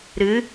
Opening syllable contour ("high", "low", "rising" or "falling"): rising